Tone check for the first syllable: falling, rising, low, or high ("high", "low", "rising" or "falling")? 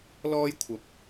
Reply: high